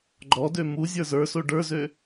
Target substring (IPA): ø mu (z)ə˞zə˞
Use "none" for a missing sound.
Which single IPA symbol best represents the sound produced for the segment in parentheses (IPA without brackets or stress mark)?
zʲ